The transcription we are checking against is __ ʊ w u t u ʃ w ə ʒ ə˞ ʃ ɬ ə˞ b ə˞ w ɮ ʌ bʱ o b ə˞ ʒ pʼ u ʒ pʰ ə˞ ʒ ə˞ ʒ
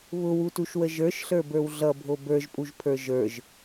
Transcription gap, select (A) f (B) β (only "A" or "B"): B